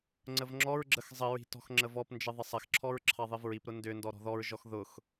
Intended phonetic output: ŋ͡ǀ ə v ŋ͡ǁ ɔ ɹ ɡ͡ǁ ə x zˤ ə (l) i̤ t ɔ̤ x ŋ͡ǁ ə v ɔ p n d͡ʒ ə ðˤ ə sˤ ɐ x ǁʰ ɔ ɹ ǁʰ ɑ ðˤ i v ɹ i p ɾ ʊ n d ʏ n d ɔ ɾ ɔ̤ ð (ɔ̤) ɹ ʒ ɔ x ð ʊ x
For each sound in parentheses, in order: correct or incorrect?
incorrect, incorrect

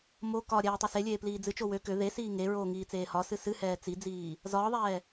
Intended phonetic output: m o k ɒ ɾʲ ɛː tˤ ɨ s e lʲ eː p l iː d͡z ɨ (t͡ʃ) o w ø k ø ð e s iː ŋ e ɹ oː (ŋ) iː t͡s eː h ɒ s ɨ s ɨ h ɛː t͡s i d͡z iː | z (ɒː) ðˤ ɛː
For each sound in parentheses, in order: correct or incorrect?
correct, correct, correct

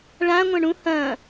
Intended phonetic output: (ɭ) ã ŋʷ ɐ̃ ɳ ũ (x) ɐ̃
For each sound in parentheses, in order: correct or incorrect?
correct, incorrect

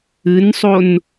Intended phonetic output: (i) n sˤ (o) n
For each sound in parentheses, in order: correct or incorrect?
incorrect, correct

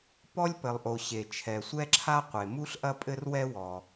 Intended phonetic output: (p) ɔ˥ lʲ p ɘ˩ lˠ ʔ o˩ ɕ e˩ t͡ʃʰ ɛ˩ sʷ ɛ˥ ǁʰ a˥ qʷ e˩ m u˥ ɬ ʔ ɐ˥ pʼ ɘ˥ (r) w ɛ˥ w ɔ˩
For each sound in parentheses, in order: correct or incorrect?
correct, correct

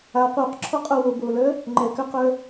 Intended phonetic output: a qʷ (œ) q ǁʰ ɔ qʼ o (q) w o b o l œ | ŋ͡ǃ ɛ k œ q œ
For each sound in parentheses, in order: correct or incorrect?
correct, incorrect

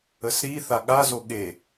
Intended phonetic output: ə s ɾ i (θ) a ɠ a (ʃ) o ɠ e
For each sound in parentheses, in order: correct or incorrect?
correct, incorrect

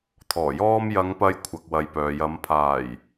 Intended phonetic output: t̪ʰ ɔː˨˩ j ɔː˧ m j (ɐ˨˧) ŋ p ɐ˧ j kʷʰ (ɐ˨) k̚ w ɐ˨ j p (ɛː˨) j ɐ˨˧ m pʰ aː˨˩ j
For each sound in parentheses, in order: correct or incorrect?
correct, correct, incorrect

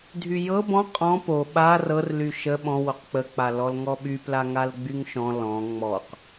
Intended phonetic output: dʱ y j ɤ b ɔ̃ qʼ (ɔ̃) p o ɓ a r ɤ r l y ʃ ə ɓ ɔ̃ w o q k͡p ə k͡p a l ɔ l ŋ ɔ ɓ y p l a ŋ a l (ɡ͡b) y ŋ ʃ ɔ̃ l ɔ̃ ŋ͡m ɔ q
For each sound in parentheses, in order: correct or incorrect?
correct, correct

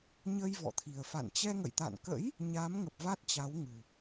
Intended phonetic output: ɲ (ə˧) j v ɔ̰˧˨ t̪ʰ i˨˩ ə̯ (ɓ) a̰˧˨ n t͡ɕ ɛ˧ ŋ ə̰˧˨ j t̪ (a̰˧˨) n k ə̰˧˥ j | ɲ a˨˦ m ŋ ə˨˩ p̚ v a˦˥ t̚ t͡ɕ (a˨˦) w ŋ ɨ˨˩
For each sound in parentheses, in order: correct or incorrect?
correct, incorrect, correct, correct

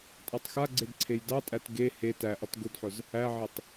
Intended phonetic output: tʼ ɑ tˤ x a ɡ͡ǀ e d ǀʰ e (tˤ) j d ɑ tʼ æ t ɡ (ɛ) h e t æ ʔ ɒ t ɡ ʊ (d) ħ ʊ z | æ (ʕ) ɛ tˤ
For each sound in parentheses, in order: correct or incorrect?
incorrect, incorrect, correct, correct

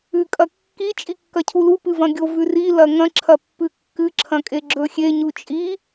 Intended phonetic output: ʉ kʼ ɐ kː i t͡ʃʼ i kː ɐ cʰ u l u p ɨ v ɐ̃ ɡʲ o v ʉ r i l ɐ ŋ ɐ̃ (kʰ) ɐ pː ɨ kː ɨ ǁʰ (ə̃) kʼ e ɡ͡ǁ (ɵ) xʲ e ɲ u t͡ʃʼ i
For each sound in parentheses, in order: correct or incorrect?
incorrect, incorrect, correct

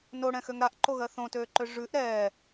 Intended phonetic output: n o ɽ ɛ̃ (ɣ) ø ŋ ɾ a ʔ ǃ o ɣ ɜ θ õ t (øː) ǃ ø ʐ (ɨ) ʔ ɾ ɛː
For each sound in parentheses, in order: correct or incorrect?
incorrect, correct, incorrect

